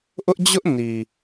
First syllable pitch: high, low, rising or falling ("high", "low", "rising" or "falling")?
high